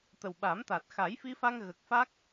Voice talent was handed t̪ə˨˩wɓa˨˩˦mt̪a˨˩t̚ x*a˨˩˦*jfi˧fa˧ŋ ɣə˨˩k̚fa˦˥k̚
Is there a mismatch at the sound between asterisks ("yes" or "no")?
no